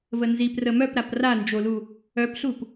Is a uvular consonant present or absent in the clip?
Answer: absent